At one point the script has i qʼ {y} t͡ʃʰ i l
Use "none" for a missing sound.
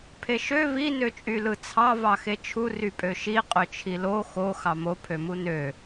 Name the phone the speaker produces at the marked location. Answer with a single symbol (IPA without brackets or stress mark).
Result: ø